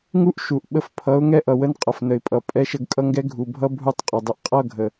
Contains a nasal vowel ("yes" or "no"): no